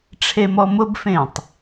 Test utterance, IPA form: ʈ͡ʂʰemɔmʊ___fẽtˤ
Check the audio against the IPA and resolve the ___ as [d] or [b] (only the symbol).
b